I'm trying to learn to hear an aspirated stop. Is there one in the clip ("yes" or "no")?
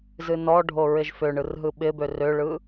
no